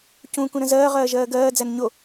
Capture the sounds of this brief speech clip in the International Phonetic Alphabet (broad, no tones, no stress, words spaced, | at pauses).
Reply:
cũ kũɾə̃zɜː ʁɜːʒɜːɡɜː d͡zænɲo